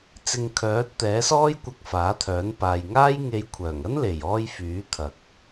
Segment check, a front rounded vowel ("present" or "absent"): present